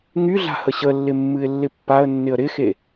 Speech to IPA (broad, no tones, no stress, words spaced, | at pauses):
ŋyɮa̤ həɕəlːɪ mːɨɪ̯lːɪpːaə̯nːɪə̯ ɾɪxe